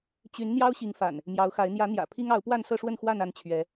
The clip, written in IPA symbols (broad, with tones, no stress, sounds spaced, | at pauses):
t͡ɕ y˨˦ n n̪ j ɑ˦ ʊ̯ ɕ i˨˦ ŋ f a̰˨˩ n | m j ɑ˨˦ ʊ̯ x a˨˦ ɪ̯ n̪ j ä˨˦ n̪ j ä̰˨˩ pʰ i˦ ŋ ɑ˨˦ ʊ̯ p w a˥˨ n s ɤ˥˨ ʂ w ə˥˨ n x w a˥˨ n a˥˨ n t͡ɕʰ ɥ ɛ˨˦